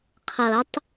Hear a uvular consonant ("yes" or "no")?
yes